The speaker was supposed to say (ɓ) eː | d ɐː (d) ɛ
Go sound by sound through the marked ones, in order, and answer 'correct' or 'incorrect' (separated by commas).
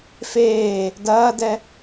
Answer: incorrect, correct